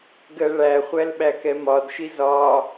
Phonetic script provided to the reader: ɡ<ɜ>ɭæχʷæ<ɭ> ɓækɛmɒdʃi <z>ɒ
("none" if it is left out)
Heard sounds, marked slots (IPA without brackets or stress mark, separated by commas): ɜ, l, z